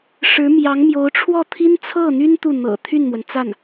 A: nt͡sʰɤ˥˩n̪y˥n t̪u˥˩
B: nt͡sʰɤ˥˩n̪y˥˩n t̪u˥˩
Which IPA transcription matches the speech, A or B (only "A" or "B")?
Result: A